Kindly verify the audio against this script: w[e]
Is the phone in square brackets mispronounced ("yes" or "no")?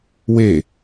no